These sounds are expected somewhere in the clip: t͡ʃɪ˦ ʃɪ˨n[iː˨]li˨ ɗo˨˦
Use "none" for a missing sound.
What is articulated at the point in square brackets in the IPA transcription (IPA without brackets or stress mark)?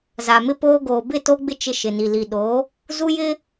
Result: i˨